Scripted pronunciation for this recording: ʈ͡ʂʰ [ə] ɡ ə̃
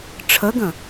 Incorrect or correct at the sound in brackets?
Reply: correct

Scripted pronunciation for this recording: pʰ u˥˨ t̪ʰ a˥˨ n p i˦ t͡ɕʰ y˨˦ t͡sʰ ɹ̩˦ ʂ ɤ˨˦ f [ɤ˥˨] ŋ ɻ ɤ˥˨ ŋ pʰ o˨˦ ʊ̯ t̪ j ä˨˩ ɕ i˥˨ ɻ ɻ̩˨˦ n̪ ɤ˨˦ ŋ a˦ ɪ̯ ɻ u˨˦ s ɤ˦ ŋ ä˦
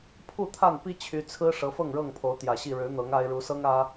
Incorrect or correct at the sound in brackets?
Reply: correct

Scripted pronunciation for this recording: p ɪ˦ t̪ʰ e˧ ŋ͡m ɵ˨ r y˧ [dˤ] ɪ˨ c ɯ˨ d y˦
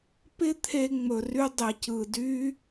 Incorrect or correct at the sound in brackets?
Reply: correct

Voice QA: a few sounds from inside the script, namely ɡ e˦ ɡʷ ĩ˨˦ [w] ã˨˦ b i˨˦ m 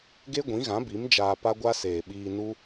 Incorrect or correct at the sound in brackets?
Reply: incorrect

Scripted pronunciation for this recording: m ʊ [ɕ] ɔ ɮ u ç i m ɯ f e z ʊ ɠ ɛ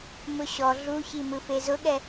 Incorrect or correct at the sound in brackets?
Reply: correct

